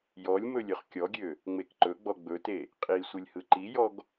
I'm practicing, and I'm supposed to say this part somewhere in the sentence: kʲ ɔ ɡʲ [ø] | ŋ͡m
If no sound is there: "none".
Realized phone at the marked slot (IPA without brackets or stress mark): ø